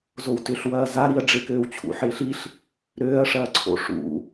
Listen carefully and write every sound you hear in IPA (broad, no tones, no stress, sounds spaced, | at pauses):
z o w t ʏ ɬ w ɐː z a ɾ i ɐ̯ ɖ͡ʐ e k øː w t͡ɕʰ ṵ ħ ɪː ɬ i ɬ | ɾ øː ɐ̯ ʂ ɐː ǀʰ o̰ ʂ ṵ